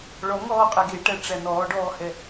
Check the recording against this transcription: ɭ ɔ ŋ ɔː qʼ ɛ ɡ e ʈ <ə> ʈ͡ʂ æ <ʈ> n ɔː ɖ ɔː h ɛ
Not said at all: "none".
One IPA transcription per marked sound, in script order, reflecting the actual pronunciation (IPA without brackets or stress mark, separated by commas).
æ, none